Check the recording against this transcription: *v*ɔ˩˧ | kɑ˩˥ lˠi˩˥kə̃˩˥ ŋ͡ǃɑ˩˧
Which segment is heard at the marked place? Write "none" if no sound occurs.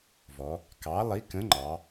v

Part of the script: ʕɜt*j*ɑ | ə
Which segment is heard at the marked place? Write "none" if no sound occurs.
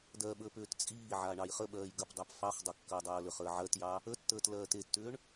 j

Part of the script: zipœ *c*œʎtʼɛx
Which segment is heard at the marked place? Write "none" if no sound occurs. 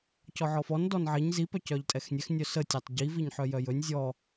c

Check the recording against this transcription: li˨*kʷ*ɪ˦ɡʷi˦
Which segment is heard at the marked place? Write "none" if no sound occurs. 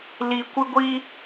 kʷ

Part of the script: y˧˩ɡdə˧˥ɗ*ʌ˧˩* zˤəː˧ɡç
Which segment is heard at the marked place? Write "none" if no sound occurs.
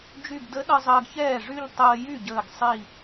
ʌ˧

